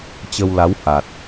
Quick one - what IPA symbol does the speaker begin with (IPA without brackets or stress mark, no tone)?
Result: t͡ɕ